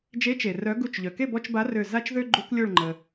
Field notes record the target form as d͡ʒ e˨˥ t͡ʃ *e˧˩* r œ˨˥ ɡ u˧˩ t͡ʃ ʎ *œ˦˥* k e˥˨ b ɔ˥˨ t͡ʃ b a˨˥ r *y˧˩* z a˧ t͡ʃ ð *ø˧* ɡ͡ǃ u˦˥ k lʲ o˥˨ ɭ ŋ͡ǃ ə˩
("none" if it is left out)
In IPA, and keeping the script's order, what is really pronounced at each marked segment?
e˩, œ˩, ø˧˩, ø˧

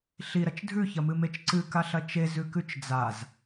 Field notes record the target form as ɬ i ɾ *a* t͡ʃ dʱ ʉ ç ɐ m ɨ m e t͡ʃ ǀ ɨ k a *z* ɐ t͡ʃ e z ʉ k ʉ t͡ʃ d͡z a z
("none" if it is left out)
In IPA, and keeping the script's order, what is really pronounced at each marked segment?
ɐ, ɬ

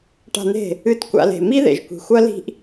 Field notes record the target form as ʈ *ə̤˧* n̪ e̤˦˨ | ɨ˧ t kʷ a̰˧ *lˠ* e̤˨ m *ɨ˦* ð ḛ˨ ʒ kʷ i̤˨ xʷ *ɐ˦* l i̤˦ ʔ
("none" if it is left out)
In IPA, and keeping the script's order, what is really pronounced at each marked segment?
a̤˧, l, i˦, ɐ˦

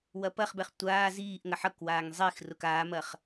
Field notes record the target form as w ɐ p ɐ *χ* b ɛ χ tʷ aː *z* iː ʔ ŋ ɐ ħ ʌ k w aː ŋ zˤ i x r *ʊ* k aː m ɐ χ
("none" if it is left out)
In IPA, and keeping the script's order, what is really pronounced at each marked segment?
χ, z, ʊ

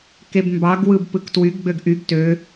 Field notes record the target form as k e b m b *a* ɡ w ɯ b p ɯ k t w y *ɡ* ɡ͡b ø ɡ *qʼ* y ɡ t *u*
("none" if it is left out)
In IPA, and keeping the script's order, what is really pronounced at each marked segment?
ɑ, ɡ, ʔ, ø

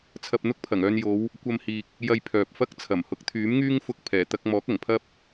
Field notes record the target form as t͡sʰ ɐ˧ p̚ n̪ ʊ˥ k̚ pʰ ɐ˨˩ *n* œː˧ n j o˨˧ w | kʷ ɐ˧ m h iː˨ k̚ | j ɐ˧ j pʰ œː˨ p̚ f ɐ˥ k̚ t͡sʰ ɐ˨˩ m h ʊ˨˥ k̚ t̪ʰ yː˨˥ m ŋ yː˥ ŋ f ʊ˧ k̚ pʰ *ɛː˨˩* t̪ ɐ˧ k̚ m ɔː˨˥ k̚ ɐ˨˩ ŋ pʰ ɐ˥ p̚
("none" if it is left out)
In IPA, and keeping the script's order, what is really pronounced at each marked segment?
ŋ, ɛː˨˩

